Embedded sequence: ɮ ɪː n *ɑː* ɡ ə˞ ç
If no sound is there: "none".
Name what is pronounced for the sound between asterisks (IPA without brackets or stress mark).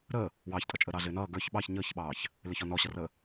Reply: ʌː